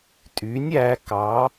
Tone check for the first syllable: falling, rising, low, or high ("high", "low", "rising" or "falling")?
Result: rising